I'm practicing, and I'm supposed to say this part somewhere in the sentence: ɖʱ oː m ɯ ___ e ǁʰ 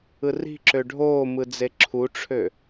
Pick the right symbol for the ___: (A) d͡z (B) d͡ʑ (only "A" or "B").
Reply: A